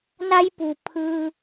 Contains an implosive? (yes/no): no